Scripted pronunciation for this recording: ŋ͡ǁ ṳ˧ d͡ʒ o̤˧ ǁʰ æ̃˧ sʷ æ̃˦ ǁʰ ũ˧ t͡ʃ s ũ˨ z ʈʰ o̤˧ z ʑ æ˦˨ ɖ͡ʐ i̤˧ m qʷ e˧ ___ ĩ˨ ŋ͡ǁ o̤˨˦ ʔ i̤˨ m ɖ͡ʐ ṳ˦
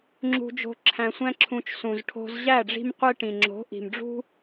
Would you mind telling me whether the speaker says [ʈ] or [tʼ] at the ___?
ʈ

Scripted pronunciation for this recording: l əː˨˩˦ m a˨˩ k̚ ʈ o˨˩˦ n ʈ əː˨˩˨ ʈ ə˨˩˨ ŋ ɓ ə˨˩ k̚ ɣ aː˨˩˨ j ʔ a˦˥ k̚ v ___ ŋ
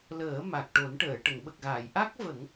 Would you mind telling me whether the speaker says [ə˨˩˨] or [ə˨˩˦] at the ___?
ə˨˩˦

